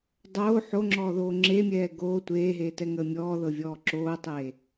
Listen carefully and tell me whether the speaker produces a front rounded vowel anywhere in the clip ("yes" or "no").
no